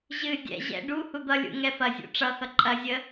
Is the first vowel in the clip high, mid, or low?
high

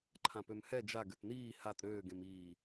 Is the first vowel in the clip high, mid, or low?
low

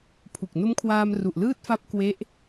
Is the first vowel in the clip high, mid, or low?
high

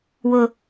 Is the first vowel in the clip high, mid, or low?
high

